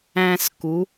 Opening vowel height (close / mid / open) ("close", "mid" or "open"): open